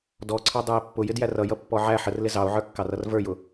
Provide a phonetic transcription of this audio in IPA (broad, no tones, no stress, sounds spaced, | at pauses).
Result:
d ɔ ǀʰ ɑ dˤ ə˞ e̯ pː ʊ j ɪ d j æ r ʌ j ʌ pː ɔ ʕ æ ħ ə r l ɪ z ɑ o̯ ʕ ə˞ kː ɑ r ʌ r v ə˞ j ʊ